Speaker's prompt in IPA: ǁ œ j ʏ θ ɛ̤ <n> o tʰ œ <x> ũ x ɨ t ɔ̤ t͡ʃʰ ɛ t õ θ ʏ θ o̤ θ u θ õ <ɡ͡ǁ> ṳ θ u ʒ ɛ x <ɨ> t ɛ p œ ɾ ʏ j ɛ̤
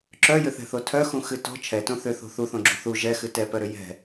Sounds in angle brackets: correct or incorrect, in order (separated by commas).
incorrect, correct, correct, correct